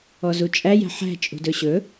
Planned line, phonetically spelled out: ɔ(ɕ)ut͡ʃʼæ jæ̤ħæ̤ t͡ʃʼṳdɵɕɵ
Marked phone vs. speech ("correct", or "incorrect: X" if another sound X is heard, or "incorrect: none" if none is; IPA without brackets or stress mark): incorrect: z